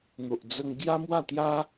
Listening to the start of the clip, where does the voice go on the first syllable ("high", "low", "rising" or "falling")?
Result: low